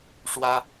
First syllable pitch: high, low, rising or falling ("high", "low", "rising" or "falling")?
high